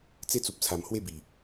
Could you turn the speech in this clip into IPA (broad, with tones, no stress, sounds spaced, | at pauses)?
t͡s e˦ t͡s u˨ p̚ t͡sʰ a˨˩ m h w e˥˧ b i˨˩